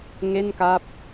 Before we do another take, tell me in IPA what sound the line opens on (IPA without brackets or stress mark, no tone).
ŋ